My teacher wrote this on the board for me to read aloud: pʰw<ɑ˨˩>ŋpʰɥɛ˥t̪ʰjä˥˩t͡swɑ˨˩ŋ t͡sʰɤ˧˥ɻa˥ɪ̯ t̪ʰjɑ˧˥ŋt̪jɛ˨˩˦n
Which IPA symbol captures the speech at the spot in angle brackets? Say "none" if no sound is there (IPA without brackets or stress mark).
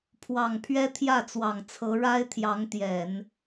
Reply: ɑ˨˩